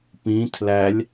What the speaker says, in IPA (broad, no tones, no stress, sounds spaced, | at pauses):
p ĩ tʰ l æ lʲ